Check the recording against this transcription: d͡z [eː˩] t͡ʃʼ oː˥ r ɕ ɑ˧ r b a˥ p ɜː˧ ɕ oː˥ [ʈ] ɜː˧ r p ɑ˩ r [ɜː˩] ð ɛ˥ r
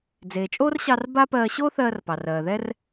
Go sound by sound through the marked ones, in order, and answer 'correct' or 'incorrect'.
correct, incorrect: θ, correct

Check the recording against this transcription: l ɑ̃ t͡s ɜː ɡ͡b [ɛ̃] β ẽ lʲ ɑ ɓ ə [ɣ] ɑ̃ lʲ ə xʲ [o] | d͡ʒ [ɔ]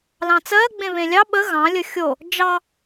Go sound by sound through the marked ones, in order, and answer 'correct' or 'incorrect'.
incorrect: ẽ, correct, correct, incorrect: ɑ

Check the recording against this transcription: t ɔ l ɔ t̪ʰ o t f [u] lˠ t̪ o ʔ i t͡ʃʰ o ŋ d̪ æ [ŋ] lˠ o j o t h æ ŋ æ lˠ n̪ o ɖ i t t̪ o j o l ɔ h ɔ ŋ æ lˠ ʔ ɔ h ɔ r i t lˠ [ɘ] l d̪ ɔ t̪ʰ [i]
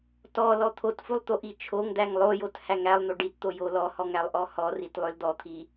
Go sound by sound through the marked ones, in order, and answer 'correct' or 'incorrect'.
correct, correct, incorrect: ø, correct

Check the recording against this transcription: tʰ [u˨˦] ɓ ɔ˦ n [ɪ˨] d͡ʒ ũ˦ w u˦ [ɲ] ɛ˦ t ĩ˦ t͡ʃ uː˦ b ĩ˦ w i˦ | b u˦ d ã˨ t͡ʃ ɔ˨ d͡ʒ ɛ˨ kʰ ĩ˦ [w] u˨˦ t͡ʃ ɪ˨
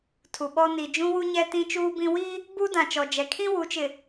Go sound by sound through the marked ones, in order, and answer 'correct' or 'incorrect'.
incorrect: u˨, incorrect: i˨, correct, correct

